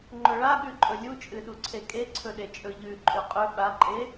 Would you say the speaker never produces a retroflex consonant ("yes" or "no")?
no